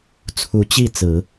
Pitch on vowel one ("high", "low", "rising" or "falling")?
rising